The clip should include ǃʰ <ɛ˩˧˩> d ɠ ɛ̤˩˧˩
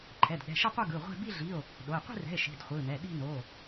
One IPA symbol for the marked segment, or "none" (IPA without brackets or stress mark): ɛ˩˧˩